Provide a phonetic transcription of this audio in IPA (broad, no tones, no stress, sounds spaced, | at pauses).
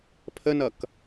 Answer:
pʰ ə n ʌ k